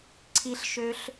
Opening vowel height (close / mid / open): close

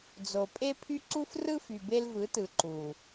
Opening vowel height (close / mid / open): mid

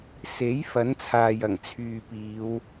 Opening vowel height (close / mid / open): mid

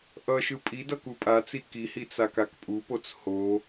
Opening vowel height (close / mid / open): mid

